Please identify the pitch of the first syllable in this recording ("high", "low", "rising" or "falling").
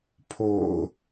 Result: low